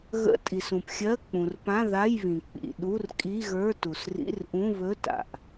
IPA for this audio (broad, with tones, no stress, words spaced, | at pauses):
ɣə̰˧˥˧ tʼi˩sũ˩pxʲɜ˧˥˧ k͡pũ˩rpã˧˥˧ ða˧˥˧jβĩ˩ k͡pḭ˩ ɗu˧˥˧rkʼi˧˥˧ɣə˞˧˥˧ tu˩srḭ˧˥˧rʔũ˧˥˧ βɵ˧˥˧ta̰˩ʔ